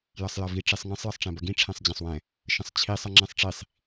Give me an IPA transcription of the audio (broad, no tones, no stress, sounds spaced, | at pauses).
j ɐ sˤ j ɐ v i ʈ͡ʂ i sˤ ŋ ə̃ sˤ j ə sˤ ʈ͡ʂ ɛ̃ b ɐ ɡ ĩ ʈ͡ʂʰ ɛ̃ sˤ d͡ʑ ɐ̃ sˤ w ɛ̃ | ʃ ə̃ sˤ t͡ɕʰ i sˤ ɐ ŋ͡ǁ ɛ̃ sˤ ʈ͡ʂ i sˤ